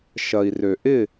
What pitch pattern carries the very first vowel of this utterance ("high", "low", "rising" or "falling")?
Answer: low